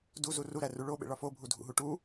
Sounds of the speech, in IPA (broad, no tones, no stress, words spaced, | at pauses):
duzu ruɾæru ɭoɓḛɭɒ fobʱudʱṵɦu ʈu